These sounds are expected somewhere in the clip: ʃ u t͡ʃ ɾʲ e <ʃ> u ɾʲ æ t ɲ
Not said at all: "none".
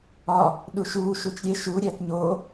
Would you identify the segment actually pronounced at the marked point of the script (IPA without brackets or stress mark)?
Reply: ʃ